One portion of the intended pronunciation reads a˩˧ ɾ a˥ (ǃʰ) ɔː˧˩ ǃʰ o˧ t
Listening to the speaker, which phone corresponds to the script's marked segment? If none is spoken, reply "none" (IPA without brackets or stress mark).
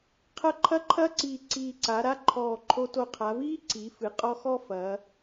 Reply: ǃʰ